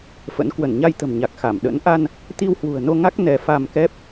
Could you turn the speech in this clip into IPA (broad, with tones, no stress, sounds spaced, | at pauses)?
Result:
f ə̰˧˥ n k w ə˧˩ n ɲ a˧ j t̪ ə̤˨˩ m ɲ a˨˩ k̚ x a˧˩ m ɗ ə̰˧˥ n ʔ a˧ n | t̪ i˧ w h w ṳ˨˩ ə̯ n o˧ ŋ a˦˥ k̚ n ɛ˧ f a˧ m k ɛ˦˥ p̚